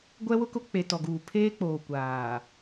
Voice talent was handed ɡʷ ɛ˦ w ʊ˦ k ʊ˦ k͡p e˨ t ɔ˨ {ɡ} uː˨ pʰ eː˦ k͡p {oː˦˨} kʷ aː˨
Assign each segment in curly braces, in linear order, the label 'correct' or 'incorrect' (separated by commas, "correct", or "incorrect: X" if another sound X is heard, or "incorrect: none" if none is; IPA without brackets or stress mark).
correct, incorrect: oː˨